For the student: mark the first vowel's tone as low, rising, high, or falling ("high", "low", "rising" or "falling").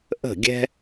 falling